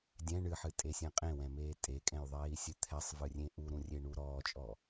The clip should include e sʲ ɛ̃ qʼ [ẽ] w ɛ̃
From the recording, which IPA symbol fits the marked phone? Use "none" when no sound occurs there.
ẽ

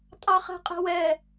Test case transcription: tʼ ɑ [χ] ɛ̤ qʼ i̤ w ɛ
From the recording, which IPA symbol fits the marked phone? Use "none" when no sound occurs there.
χ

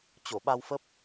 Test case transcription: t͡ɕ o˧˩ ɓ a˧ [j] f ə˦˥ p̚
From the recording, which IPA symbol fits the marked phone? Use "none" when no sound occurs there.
w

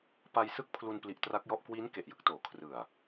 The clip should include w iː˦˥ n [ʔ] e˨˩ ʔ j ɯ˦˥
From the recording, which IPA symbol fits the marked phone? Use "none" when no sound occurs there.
k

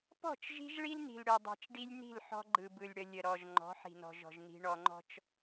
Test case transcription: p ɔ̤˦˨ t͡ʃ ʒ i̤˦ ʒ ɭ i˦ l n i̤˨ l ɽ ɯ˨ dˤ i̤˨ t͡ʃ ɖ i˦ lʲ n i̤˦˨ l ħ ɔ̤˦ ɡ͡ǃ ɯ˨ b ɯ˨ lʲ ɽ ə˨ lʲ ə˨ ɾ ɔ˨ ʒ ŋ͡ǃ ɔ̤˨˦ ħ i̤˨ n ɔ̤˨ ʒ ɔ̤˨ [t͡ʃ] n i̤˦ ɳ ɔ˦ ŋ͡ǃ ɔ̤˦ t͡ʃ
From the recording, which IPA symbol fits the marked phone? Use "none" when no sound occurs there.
ʒ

